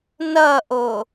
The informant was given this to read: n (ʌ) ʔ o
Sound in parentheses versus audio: correct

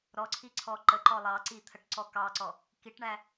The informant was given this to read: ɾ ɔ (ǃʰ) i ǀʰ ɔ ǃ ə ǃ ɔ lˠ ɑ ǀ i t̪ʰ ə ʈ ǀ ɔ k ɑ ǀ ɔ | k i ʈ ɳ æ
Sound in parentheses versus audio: incorrect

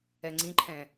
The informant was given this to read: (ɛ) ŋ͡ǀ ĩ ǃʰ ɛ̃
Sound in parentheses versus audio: correct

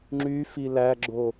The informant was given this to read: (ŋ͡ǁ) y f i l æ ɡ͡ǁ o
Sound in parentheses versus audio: correct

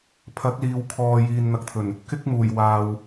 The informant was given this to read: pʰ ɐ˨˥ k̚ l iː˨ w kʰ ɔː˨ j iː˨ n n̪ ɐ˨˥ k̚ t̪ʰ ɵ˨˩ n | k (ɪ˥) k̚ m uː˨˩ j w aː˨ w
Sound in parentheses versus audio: correct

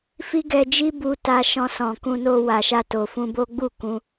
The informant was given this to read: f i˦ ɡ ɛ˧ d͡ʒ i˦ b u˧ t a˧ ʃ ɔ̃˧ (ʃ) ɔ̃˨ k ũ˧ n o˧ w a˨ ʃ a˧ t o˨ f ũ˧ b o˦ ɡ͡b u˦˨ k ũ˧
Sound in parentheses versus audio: incorrect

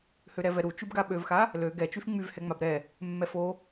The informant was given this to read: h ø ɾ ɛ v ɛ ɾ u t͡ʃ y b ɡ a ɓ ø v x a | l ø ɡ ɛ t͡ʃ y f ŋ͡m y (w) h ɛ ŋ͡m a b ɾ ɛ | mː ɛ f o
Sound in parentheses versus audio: incorrect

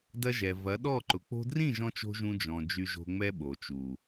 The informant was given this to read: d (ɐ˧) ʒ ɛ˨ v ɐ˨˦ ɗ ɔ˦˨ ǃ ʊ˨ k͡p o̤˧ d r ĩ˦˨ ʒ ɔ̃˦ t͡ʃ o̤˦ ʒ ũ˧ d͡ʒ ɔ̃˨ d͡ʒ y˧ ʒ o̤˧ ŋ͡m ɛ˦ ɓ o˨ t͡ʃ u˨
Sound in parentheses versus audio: correct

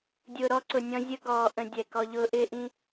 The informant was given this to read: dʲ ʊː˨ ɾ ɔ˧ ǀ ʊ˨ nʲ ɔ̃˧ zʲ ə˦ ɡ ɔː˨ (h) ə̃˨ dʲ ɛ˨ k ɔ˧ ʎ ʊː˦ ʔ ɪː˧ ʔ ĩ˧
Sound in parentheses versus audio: incorrect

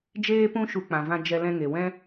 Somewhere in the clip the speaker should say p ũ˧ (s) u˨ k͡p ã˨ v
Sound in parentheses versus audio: incorrect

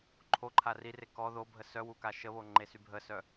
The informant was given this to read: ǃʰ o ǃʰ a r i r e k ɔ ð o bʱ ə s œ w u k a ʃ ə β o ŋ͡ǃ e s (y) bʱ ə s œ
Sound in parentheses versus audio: correct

